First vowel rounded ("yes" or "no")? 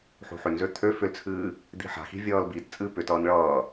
yes